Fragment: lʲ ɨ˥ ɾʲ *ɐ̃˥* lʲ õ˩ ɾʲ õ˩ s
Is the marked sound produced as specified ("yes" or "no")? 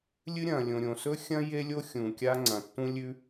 no